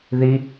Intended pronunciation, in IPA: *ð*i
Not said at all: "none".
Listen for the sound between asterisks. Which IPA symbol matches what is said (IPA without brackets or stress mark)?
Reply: ð